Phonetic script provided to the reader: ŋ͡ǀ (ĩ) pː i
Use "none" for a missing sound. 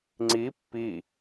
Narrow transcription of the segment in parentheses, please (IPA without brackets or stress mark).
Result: i